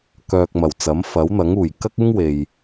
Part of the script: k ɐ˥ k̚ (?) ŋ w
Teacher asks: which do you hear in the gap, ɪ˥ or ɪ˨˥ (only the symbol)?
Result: ɪ˥